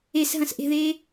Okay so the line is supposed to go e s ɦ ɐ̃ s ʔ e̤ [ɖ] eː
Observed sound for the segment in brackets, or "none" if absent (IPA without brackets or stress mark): ð